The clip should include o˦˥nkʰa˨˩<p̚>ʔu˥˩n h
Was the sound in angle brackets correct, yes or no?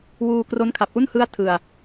yes